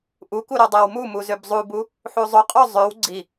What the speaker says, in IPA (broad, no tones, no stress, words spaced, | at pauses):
ʔuku ɾodˤæwmumu zøbzˤubu | ħuzˤoqʼo zˤøw ɡ͡ǀi